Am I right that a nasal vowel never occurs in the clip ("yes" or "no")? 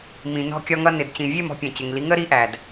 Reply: no